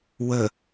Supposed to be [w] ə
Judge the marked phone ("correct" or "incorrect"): correct